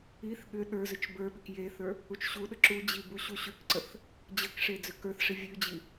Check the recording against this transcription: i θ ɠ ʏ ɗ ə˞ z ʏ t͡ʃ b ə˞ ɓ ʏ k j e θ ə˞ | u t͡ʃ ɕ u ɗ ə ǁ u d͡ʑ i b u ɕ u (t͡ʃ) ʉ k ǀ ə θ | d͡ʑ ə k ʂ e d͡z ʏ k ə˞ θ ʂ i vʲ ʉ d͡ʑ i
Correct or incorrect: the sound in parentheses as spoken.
incorrect: ɕ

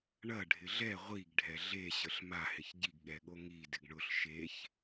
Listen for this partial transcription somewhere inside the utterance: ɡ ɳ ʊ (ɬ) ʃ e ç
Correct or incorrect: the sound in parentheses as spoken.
correct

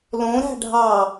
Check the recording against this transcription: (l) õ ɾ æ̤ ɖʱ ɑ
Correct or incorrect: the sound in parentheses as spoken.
correct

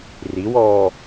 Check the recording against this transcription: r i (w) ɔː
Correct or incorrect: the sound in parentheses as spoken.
correct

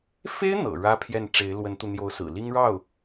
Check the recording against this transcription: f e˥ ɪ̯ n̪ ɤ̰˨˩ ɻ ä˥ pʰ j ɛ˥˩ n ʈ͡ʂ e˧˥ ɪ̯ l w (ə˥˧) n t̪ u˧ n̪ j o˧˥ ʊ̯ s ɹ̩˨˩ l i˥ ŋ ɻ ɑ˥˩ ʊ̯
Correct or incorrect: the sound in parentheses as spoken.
incorrect: ə˧˥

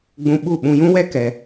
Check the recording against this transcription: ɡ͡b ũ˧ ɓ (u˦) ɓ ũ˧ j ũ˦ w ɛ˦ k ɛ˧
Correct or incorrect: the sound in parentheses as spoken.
incorrect: u˦˨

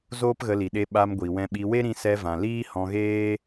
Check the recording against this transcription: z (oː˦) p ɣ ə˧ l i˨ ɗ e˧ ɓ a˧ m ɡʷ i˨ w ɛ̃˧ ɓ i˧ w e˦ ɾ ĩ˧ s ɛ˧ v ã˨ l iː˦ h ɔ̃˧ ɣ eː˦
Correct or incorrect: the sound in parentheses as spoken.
correct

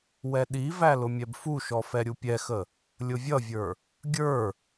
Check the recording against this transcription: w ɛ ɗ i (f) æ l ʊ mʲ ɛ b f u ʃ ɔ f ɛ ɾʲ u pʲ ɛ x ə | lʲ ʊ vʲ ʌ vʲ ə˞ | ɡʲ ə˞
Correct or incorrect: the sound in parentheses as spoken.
incorrect: v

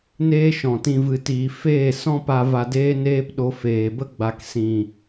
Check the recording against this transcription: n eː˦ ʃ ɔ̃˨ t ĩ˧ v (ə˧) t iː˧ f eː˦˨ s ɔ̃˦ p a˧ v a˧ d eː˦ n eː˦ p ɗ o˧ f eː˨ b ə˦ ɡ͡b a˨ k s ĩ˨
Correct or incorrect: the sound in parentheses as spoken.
incorrect: ɨ˧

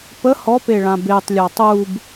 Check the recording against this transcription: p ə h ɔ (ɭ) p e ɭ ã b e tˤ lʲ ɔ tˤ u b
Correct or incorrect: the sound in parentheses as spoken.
incorrect: none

